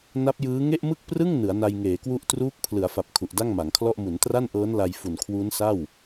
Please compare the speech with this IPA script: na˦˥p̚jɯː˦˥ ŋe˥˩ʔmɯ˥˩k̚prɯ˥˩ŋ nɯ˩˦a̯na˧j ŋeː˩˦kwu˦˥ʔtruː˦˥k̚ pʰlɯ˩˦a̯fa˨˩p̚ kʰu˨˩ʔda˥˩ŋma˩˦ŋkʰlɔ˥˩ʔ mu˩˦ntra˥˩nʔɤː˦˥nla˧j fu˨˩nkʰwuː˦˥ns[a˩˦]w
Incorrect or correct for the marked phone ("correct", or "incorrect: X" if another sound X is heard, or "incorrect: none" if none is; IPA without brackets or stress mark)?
incorrect: a˥˩